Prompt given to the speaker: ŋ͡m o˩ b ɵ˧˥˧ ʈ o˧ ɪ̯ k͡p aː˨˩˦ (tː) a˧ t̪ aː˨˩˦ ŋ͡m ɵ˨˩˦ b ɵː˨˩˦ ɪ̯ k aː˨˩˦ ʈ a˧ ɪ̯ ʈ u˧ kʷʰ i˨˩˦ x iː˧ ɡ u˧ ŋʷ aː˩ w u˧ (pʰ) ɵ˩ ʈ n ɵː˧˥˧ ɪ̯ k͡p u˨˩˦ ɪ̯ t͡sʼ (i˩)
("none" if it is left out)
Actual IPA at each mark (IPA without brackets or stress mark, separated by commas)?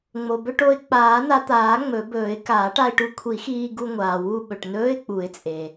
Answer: n, ɓ, e˩